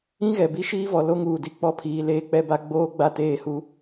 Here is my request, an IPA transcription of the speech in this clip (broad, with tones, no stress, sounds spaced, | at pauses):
ĩ˦ ɣ ɛ˨ b i˦ ʃ iː˦ v ɔ˨ l o˦ ŋ uː˨ d i˦˨ k͡p ɔ˦ pʰ iː˨ l eː˦ k͡p ɛ˦ b a˦ ɡ͡b oː˦ ɡ͡b a˦ t eː˦˨ h u˦